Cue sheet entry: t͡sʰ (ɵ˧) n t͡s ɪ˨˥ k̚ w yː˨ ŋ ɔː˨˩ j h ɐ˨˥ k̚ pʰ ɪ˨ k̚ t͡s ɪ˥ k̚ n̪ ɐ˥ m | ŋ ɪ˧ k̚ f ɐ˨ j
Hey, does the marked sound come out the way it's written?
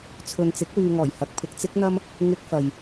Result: no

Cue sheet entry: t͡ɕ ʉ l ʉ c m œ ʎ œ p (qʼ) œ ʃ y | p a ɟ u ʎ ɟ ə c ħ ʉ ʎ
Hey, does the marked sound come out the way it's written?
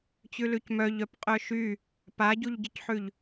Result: yes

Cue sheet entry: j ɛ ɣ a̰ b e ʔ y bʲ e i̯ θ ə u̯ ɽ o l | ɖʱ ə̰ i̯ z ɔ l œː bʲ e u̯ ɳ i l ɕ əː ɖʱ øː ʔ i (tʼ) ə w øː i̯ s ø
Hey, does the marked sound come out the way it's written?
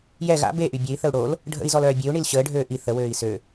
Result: no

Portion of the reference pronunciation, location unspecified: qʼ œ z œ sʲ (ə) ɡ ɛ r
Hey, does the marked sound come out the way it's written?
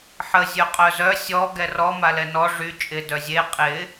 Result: no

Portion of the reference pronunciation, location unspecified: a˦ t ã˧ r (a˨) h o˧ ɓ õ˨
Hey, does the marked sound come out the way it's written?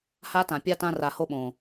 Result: yes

